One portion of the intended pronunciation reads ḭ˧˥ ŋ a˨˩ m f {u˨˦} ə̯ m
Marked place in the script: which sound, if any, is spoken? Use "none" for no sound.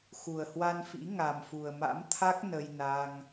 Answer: u˨˩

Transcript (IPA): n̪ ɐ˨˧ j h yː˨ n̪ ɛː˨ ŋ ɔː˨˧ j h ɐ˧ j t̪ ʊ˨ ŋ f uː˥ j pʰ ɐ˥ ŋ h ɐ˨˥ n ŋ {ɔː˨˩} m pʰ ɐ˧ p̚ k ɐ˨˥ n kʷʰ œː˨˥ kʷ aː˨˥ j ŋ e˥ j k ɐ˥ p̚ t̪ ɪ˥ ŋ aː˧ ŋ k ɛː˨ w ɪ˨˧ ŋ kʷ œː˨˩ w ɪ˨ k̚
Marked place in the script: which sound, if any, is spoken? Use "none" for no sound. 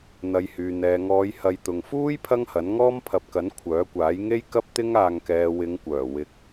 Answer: ɔː˥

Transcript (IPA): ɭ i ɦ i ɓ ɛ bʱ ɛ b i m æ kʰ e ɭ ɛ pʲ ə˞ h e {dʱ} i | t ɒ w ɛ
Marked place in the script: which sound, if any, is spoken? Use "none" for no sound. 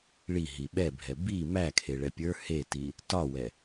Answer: t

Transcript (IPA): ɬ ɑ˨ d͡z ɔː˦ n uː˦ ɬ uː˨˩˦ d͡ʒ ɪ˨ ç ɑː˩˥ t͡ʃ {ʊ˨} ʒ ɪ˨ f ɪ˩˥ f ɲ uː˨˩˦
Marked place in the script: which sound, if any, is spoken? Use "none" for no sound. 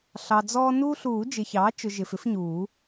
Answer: ʊ˨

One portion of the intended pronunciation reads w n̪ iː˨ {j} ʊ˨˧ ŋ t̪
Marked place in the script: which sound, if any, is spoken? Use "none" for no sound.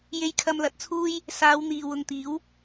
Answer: w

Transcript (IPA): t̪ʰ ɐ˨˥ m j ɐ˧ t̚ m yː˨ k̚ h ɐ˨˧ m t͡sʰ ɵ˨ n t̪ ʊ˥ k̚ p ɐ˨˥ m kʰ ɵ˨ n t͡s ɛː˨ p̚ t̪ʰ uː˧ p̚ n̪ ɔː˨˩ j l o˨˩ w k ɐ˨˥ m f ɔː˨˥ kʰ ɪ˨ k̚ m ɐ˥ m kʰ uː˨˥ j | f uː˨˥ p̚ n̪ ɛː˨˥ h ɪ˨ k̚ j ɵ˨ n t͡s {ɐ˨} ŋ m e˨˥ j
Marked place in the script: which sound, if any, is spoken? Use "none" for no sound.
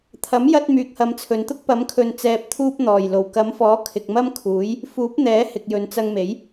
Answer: ɐ˧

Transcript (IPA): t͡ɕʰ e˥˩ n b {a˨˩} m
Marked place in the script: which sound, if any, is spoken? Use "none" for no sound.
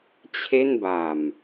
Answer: a˨˩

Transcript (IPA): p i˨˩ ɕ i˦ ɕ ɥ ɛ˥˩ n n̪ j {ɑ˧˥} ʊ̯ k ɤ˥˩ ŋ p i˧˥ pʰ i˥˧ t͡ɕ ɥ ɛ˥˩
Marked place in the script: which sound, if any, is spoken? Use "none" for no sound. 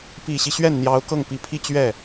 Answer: ɑ˧˥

